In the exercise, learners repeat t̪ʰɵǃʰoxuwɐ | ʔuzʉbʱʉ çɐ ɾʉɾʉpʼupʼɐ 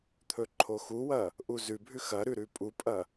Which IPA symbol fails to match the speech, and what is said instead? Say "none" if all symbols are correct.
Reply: ç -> x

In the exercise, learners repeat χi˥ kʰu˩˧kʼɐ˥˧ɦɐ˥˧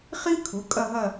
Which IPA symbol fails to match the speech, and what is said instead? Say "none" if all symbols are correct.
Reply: none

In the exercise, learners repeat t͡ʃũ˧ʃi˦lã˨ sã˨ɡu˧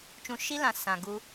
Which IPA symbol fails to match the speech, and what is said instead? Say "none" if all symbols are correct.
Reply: none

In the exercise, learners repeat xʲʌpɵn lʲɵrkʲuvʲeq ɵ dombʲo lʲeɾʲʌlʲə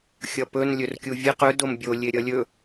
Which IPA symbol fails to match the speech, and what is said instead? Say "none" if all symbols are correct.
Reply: ə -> ɵ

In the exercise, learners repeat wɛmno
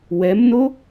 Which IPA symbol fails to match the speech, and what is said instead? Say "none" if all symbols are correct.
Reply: none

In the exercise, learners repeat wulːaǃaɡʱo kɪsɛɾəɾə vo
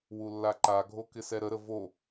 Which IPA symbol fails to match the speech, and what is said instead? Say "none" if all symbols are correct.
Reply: none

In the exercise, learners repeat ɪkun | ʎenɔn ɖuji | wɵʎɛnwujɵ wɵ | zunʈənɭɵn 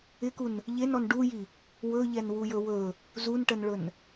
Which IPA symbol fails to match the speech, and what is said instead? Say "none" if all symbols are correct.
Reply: none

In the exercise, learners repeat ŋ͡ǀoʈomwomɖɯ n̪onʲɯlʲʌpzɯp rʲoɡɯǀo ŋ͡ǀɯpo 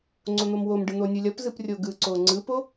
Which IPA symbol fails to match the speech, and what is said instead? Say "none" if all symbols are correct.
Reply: ʈ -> n̪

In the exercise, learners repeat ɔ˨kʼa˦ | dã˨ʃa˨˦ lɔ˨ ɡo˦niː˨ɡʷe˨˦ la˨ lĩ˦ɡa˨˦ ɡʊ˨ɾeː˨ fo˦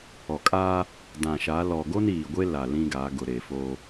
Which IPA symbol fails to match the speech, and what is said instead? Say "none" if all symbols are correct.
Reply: e˨˦ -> e˦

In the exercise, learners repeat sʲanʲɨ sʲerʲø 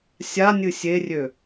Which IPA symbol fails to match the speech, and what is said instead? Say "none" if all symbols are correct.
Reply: none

